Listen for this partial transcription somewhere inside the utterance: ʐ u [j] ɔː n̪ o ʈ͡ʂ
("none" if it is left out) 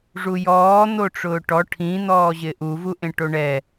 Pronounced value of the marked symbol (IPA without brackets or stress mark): j